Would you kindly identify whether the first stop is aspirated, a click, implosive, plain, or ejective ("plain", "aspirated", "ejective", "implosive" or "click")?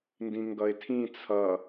plain